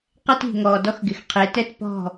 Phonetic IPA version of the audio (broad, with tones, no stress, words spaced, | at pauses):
qɛ˦ti̤˨ŋɔː˨ dɔ˦xɡɪ˨x qʰe˨˦tɛ˦t pɔ̤˦˨